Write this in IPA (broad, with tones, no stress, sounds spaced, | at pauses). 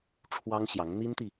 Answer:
ʈ͡ʂʰ w ɑ˥ ŋ ɕ j ɑ˧˥ ŋ n̪ i˥ n t̪ i˨